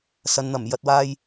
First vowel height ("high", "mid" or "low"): low